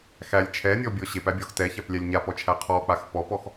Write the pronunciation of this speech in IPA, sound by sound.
x æ lʲ t͡ʃʰ ɛ nʲ ɔ bʲ ɔ ɕ e p æ bʲ ɔ x t ɛ ç æ p lʲ æ lʲ ɲ a p ɔ t͡ʃʰ æ qʰ ɔ k͡p a x p ɔ p ɔ x

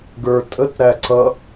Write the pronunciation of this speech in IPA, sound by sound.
ɡ ə˞ tʼ ə t ɾ æ ǀ ʌ

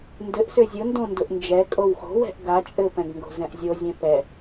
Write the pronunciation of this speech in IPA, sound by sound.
n d ɘ ʔ s ʏ zʲ ʊ n d õ n d ʊ ʔ n d͡ʒ ɛ kʼ o w x o̤ w ɛ̤ ʔ ɡ a t͡ʃʼ ɘ p ɛ̃ ɡ ŋ ɡ o̤ z ɛ̃ ʔ zʲ o zʲ ɛ̃ p ɛ

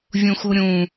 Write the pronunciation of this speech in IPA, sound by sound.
vʲ ũ x u ɾʲ ũ

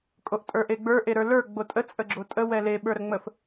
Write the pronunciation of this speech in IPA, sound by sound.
kʼ o ʔ tʼ ə˞ ʔ e ɡ͡b ə˞ ʔ e ɾ ə˞ l ə˞ ɡ͡b o tʼ ə t͡sʼ ə ɡ͡ǁ o tʼ ə w ɛ l e ɓ ə˞ ɾ ə ŋ͡m ə f

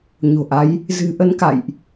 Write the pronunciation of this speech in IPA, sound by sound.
ɲ o̤˨˩ ʔ a˨˦ j | z ɨ̤˨˩ ʔ ə˨˦ n k a̰˧˨ j ʔ

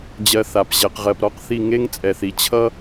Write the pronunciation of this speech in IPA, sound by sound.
d͡ʑ ɜ˧ θ a˧˩ p ʑ ɛ˧ q ʁ ɜ˧ p ɾ ɔ˥ q θ i˥˧ ŋ e˥ ŋ t͡sʼ ɛ˧ θ i˧ t͡ɕʰ ʌ˥

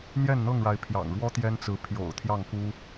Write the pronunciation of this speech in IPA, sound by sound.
n̪ j ɛ˥˨ n n̪ ɤ˥˨ ŋ ɻ a˨˦ ɪ̯ pʰ j ɑ̰˨˩ ŋ ɻ w ɔ˦ t̪ j ɛ˦ n t͡s ɹ̩˨˦ pʰ j o̰˨˩ ʊ̯ t̪ʰ j ɑ˥˨ ŋ k u˦

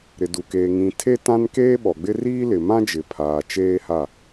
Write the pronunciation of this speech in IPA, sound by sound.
ɾ ɪ˨ d u˨ k eː˨ ŋ ĩ˨ tʰ e˦ t ã˦ n k eː˦ ɓ ɔ˨ ɡ͡b ɪ˦ r iː˦ l ɪ˨ m ã˦ d͡ʒ ɪ˨ pʰ aː˨ t͡ʃ eː˦ h a˦˨

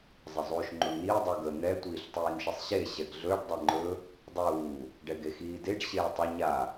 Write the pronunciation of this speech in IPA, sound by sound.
zˤ ə zˤ uː ʃ ŋ͡ǃ u ɳ n iː dˤ u ɡ ə n̪ ɛ tʷ iː ɬ tˤ iː n ʃ ə sˤ ɕ e ɕ ɛ ɡ ɮ ɵ ɖ dˤ e ŋ͡ǃ ɵ | dˤ uː | ɖ ɛ ɡ e x iː d e ɖ ɕ eː tˤ ə ɲ a

